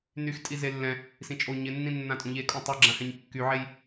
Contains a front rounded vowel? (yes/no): yes